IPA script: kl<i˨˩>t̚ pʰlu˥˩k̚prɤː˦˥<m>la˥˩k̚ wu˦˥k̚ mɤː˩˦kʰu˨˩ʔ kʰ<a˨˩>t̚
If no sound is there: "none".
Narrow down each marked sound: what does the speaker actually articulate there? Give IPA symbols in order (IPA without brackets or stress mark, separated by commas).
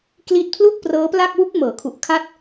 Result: i˥˩, p, a˥˩